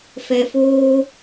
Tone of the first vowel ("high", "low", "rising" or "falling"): low